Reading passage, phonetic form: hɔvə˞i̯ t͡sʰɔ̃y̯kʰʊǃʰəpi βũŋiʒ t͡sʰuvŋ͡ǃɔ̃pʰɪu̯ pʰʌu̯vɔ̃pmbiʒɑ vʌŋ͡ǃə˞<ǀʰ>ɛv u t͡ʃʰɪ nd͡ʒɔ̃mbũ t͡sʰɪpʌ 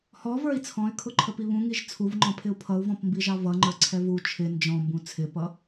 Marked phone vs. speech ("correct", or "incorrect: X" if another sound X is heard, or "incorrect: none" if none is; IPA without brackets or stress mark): correct